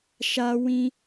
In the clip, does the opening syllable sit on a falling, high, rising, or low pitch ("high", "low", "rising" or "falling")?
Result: high